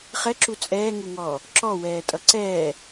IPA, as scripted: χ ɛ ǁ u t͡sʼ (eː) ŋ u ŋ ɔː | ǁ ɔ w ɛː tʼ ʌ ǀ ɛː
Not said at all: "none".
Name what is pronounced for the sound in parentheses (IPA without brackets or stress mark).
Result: ɛː